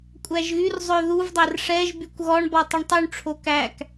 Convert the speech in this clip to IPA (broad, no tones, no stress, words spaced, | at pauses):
kʷʼæʒɣyrzˤø ðuvdˤær ʂɛʒ bykʷɣɔɳbɔ tˤœɳtˤyɳʈ͡ʂʰo kæk